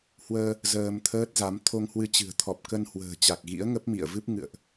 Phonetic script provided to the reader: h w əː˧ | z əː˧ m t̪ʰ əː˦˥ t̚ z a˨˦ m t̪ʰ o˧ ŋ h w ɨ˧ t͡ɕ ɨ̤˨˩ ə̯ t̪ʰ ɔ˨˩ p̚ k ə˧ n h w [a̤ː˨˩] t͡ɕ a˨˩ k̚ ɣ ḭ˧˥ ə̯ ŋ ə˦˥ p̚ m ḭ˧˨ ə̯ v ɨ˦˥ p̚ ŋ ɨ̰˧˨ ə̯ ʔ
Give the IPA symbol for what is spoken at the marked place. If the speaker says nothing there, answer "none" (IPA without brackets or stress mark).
ə̤ː˨˩